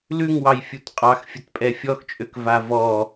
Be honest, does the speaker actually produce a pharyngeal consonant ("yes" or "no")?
no